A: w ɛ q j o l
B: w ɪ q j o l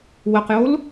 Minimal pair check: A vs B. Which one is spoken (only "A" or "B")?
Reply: A